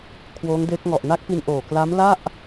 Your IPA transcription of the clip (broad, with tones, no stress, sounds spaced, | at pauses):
kʰ w oː˦˥ ŋ d eː˦˥ k̚ ŋ ɔ˨˩ ʔ n a˦˥ k̚ p i˧ n ʔ oː˨˩ k l a˦˥ m l a˥˩ ʔ